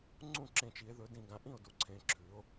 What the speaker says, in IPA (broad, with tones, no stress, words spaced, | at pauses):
ŋ͡ǀũ˥˩ǁẽ˧˩t͡ʃ i˧˩˧e̯ðɵ˩˧dĩ˧˩ ɡã˩˧ʔĩ˥˩o̯du˩˧ ǀʰẽ˩˧ǁʰʉ˩˧o̯